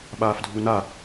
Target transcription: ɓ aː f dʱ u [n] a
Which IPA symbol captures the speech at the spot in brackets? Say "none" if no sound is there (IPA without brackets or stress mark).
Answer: n